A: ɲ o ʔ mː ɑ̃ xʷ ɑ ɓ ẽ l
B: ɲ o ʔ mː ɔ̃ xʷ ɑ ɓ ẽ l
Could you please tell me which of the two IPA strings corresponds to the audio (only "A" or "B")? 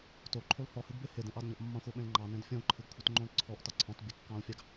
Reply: A